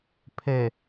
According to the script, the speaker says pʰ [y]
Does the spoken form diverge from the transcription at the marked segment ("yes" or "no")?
yes